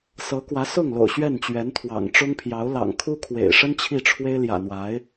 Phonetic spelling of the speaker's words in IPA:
s ɤ˧˥ k w ä˧˥ s ʊ˥˩ ŋ l o̰˨˩ ʊ̯ ɕ ɥ ɛ˥˩ n t͡ɕ ɥ ɛ˧˥ n t̪ʰ w ɑ̰˨˩ ŋ ʈ͡ʂ ʊ˥ ŋ pʰ j ɑ˧˥ ʊ̯ l ɑ̰˨˩ ŋ kʰ u˥ kʰ w ḛ˨˩ ɪ̯ ʂ ə˥ n t͡ɕʰ i˥˩ ʈ͡ʂʰ w e˥ ɪ̯ l j ä̰˨˩ n̪ w a˧˥ ɪ̯

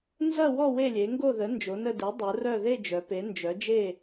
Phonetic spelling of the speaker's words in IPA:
n z ɐ˥˨ w ɔ˥˨ w e˥˨ lʲ e˩˥ ŋ ɡ o˥˨ ð ə˩˥ n d͡ʒ o˩˥ n ə˥˨ d e˩˥ dˤ u˩˥ r œ˥˨ ð e˥˨ d͡ʒ œ˩˥ p e˩˥ n d͡ʒ œ˩˥ d͡ʒ e˥˨

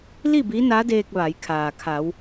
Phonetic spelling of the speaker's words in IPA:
l i˥˨ b i˧˥ n a˧˥ d eː˧ k̚ ʋ a˩˧ j kʰ aː˩ kʰ a˩˧ w

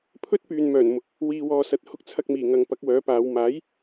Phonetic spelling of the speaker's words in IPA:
pʰ ɵ˥ t̚ p yː˨ n m œː˨˩ n m ʊ˨ k̚ | w iː˨ w ɔː˨ s ɐ˨˥ t̚ h ʊ˧ k̚ t͡sʰ ɐ˧ k̚ m iː˨˩ ŋ ɐ˨˧ ŋ p ɐ˨˥ k̚ w œː˨˥ p aː˨˧ w m aː˨˥ j

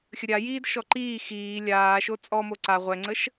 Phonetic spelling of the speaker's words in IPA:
xʲ ə ɾʲ a j iː d ʃ ɔ ǃ iː x iː lʲ aː ʃ o t͡sʼ ɔ m o ǀ a ʁʷ ɛ ŋ͡ǀ ə ʃ

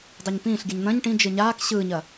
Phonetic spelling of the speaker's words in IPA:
dˤ i ɲ p ĩː ɬ ɡʲ ɯ ɲ n̪ ɐ̃ ɲ ʈ ĩ d͡ʒ ɯ ɲ aː k ɕ ɯː ɲ ɐ

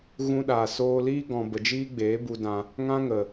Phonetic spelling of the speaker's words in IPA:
ɣ ũ˧ ɗ aː˨ s oː˧ l iː˦ ɡ ɔ̃˧ b ə˧ d͡ʒ iː˦ ɡ͡b eː˨˦ b u˧ d ã˧ | ŋ ã˦ ŋ ə˨

